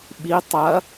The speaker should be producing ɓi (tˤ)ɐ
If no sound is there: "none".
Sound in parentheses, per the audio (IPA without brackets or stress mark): tˤ